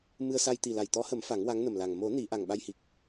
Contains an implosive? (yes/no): yes